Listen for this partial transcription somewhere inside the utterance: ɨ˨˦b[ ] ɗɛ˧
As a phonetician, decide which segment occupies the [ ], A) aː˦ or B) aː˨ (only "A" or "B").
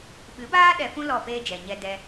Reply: A